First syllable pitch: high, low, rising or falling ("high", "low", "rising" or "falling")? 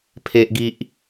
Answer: high